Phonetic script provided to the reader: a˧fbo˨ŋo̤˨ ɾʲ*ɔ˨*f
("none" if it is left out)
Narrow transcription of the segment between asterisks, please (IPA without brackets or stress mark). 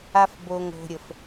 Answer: ə˨